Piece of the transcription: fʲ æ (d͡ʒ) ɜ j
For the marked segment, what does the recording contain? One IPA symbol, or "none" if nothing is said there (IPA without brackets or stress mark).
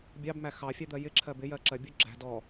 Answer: d̪